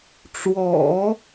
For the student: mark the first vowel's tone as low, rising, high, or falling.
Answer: low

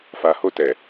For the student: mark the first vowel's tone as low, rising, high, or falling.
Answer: low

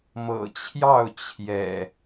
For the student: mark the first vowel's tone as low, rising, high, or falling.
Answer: low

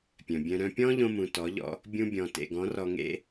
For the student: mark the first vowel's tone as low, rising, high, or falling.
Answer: low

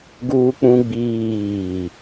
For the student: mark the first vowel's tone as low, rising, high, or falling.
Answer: high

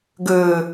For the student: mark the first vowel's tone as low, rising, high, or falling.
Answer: low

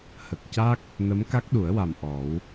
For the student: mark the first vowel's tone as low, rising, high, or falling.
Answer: low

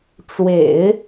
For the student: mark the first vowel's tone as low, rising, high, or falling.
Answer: low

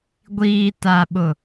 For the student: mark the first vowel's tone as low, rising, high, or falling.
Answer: low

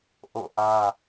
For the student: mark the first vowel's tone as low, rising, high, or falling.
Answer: falling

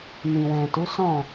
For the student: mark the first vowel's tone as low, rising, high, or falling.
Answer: low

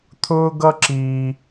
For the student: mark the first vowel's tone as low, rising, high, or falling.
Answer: high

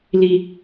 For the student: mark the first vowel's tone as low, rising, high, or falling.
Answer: high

